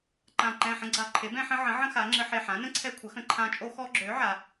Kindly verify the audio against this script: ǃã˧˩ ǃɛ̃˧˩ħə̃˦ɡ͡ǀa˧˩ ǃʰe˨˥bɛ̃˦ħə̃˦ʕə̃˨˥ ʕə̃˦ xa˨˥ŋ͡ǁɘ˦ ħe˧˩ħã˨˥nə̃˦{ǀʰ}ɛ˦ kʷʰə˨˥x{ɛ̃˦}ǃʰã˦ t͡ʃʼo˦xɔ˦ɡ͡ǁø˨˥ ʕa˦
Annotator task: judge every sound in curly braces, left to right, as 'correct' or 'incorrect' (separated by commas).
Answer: correct, incorrect